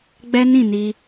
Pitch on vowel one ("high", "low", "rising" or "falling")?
high